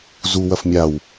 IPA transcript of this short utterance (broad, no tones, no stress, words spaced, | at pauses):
zu wɐfmʲaw